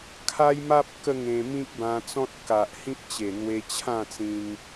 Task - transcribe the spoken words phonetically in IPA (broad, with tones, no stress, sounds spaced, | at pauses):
kʰ a˦ j m a˦ p̚ k ə˥˧ ŋ ẽ˧ m ĩ˦ k̚ b ã˧ t͡s ɔ̃˦ t̚ k a˨ ʔ h ĩ˦ p̚ t͡ɕ e˨˩ n̪ w e˧ t͡ɕʰ ã˥˧ t͡s ĩ˧ ŋ